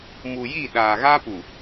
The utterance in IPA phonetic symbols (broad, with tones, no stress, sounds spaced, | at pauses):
m u˨ j i˦˨ ɗ aː˨ ɣ a˦ p u˨